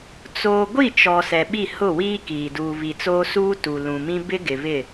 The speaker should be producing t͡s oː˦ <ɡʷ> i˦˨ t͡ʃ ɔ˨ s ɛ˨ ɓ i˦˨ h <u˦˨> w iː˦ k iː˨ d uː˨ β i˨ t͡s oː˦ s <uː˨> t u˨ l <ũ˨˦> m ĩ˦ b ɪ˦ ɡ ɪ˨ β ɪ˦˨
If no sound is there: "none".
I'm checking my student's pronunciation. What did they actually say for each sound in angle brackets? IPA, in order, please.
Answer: ɡʷ, ʊ˦˨, uː˦, ũ˨

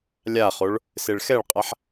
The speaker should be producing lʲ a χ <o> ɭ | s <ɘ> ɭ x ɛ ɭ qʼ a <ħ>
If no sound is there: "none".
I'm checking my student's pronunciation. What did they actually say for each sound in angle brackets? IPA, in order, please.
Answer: o, e, ħ

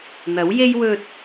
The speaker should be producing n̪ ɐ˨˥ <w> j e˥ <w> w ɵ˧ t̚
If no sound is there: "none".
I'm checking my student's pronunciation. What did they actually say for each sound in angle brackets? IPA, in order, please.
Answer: w, j

